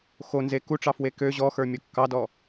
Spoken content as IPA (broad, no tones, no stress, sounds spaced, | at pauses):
x o n z e k u ʈ͡ʂ ɑ f w e k ø ʑ ɔ x ə˞ mʲ o kː ɑ d ɔ